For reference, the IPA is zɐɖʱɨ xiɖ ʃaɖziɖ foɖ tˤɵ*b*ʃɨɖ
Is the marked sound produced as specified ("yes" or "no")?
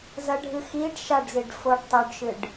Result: no